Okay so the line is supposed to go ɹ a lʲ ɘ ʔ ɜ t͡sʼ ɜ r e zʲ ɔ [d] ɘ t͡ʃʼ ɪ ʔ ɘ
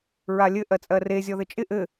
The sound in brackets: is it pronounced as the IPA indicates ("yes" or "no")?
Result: no